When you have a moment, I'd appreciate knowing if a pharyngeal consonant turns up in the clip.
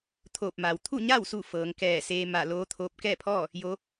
no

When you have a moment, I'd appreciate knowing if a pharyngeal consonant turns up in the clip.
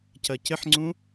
yes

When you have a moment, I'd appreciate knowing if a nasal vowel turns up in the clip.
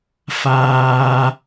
no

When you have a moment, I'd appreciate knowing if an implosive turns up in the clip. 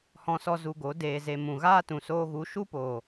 no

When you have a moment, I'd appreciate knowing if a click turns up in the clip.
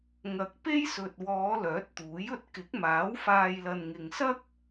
no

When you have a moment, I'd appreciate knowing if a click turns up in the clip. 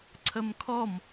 yes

